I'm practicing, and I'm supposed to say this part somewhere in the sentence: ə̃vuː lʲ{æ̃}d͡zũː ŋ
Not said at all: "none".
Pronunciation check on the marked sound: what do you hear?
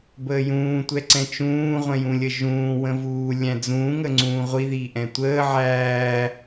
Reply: æ̃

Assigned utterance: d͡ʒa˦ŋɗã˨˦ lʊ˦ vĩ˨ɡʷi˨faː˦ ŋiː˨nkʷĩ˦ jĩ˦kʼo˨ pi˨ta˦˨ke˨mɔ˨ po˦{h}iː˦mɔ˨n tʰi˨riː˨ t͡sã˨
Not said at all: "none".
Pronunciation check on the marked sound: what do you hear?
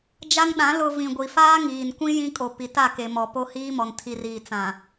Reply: h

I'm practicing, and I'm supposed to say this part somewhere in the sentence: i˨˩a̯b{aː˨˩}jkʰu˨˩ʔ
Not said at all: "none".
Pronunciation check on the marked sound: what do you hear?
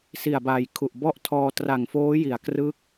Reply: aː˨˩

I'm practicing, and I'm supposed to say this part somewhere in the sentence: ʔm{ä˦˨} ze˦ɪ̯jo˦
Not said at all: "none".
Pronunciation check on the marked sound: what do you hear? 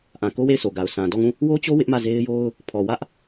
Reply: ä˦˨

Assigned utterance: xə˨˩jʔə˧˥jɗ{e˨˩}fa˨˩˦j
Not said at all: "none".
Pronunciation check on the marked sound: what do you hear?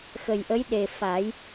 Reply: e˨˩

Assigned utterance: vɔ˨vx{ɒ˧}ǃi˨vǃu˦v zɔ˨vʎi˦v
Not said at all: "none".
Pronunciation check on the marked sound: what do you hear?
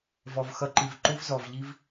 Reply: ʌ˧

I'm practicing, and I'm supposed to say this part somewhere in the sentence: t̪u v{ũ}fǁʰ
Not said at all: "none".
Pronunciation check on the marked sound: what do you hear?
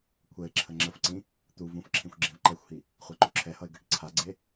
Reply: ũ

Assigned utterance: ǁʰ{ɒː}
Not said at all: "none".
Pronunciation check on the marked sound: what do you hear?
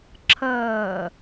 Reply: ʌː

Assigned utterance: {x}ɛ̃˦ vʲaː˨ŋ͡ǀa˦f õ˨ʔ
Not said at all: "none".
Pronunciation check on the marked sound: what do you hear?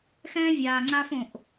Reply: x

